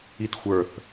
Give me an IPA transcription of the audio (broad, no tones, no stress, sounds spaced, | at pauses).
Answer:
i t xʷ ə˞ θ